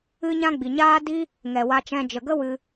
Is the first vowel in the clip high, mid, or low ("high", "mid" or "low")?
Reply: high